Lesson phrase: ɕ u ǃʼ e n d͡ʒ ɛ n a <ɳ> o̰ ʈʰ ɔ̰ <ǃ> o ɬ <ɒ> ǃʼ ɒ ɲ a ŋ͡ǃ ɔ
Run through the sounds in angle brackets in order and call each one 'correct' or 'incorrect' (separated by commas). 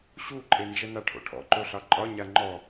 incorrect, correct, incorrect